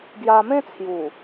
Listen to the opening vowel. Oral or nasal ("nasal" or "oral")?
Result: oral